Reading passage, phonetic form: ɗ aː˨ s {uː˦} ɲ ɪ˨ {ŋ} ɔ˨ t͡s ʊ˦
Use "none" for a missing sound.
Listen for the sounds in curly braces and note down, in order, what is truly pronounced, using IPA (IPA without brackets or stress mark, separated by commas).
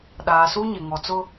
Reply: uː˦, ŋ